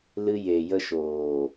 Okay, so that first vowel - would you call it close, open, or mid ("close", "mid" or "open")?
close